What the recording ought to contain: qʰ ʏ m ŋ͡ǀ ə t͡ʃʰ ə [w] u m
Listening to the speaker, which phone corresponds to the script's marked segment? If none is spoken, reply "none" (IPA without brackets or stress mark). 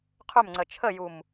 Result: j